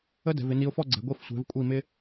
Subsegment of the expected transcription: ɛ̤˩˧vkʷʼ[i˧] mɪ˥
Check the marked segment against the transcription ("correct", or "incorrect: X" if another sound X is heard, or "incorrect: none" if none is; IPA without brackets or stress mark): incorrect: i˧˩